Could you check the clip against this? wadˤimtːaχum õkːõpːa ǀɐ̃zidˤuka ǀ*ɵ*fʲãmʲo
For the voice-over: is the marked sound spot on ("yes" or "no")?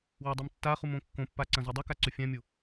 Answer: yes